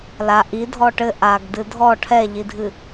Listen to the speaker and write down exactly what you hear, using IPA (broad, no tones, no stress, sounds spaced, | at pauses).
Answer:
l a ʔ i dʱ ɔ ʈ ɘ ʔ a ɡ d ɨ dʱ ɔ ʈʰ ɛ ʎ i dʱ ɨ